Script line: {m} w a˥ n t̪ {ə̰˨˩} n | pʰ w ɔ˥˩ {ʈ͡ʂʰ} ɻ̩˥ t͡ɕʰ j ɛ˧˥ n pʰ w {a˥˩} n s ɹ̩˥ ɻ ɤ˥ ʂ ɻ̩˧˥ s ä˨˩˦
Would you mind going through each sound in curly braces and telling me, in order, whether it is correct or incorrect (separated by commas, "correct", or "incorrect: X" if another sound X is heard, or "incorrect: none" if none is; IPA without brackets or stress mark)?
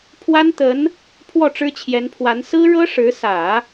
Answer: incorrect: pʰ, incorrect: ə˧˥, incorrect: ʈ͡ʂ, incorrect: a˧˥